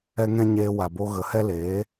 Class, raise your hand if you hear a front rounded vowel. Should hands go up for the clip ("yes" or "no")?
no